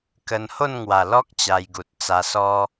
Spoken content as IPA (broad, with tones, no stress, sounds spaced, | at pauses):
k ə˧ n h o˥˧ n ŋ w a˨˩ l ɔ˦ k̚ t͡ɕ a˧ j ɡ u˨ t̚ t͡s a˧ s ɔ˦